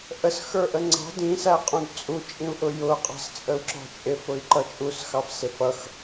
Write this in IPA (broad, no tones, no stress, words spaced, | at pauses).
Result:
ʔəsxə˞ʔə ŋ͡ǀɑ̤ dĩsæqʼũd t͡sʼut͡ʃʼĩu̯ʔʊ jʊqʼɑ̤st͡sʼəu̯ǁɔ̤ t͡ʃʼɪfʊi̯ǃʌ t͡ʃʼusxɑfsɪf ʌx